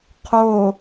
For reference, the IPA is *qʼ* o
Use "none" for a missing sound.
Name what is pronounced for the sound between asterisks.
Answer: qʰ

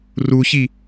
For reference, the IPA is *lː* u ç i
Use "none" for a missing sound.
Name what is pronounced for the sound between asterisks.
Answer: r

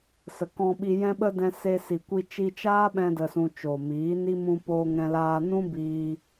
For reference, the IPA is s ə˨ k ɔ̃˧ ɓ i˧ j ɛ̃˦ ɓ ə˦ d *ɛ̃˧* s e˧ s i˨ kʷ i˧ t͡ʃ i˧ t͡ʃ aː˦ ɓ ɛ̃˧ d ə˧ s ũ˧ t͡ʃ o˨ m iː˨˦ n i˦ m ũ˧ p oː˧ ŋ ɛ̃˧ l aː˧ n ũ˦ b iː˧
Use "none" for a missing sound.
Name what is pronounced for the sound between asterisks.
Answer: ɛ̃˧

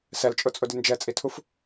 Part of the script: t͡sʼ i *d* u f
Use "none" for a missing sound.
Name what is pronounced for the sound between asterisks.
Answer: tʰ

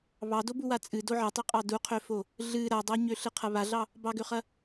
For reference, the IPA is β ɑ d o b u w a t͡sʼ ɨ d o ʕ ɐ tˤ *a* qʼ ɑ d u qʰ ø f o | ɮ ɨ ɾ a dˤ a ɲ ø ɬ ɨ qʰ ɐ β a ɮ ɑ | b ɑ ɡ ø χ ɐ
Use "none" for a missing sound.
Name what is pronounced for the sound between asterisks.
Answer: ɐ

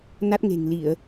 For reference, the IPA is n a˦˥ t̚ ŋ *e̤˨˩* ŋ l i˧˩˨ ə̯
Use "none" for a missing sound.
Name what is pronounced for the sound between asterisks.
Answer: e̤˨˩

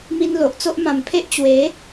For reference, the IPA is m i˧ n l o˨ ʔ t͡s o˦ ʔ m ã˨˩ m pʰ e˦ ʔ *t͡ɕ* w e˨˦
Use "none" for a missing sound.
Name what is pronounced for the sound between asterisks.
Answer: t͡ɕ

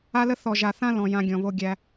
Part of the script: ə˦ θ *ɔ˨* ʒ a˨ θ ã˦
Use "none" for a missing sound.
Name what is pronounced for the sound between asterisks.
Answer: ɔ˨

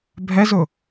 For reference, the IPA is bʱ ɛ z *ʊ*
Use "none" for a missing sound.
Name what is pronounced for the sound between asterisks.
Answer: ʊ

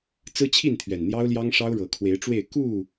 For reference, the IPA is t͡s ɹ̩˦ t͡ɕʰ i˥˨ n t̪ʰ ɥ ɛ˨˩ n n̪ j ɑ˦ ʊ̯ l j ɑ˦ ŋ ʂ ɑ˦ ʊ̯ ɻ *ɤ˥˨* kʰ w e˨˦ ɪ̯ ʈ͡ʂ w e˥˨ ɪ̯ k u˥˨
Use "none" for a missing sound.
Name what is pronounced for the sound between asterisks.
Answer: ɤ˨˦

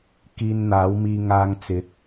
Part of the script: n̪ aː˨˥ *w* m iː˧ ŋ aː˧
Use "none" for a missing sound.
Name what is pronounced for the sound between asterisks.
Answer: w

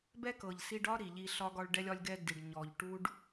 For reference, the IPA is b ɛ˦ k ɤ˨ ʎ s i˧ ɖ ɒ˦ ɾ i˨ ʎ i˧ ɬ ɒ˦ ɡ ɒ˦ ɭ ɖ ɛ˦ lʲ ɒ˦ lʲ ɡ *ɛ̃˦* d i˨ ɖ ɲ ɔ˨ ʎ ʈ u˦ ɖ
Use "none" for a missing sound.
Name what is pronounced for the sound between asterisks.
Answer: ɛ˦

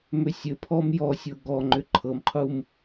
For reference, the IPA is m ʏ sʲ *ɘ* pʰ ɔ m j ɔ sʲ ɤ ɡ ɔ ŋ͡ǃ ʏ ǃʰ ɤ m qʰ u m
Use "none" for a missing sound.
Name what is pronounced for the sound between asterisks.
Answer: ɘ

